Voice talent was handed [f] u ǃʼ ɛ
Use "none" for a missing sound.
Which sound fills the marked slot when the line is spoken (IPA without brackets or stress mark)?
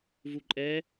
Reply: v